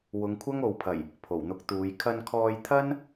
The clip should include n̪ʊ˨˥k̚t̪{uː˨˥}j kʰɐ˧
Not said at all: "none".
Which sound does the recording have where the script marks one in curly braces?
uː˨˧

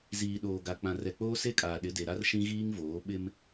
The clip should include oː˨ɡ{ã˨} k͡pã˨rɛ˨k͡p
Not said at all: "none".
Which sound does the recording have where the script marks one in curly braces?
a˨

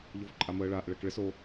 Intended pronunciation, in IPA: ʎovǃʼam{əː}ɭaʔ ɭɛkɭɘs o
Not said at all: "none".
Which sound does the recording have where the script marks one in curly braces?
əː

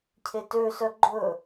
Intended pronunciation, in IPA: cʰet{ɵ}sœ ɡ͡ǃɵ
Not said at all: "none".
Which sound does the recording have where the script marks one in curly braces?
ø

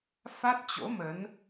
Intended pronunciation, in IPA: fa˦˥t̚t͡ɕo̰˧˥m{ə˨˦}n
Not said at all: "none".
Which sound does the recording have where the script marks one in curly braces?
ə˨˦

